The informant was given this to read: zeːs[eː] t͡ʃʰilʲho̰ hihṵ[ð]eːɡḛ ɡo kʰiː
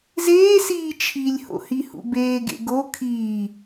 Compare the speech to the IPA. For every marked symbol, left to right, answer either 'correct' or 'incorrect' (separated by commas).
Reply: incorrect, incorrect